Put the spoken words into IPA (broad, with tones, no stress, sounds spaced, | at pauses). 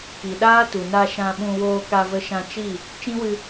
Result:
k i˨ ɗ aː˦ t u˨ n a˧ ʃ ã˧ ɓ ũ˧ w oː˧ k a˧ v ə˧ ʃ ã˧ t͡ʃ i˦˨ | t͡ʃ ĩ˦ w ɨ˧